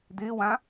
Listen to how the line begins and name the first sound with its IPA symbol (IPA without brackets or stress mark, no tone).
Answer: d